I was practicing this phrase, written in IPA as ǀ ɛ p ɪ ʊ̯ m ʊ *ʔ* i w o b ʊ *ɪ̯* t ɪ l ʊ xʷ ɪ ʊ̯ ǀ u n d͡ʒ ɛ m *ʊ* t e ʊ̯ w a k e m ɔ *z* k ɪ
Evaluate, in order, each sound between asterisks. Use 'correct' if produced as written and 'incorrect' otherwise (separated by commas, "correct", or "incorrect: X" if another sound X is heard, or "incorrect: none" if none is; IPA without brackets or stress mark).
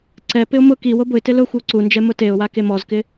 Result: incorrect: k, correct, correct, correct